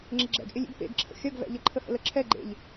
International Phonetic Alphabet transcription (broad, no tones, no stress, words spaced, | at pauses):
ŋ͡ǁɪɡ͡ǁɛ̰ɡʔɪlʲḭɡ pḛɡǁʰə̰ xʲɐɡvɛ̰ʎə ǃʰəhə̰ləǁʰɛ ɡ͡ǃḛʎ